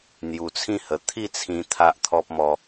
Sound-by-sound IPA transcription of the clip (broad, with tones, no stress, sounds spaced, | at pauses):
n̪ j u˧ t͡sʰ ĩ˥˧ h ə˧ t̪ʰ i˥˧ t͡sʰ ĩ˧ t̪ʰ a˦ ʔ t̪ʰ ɔ˦ p̚ m ɔ˦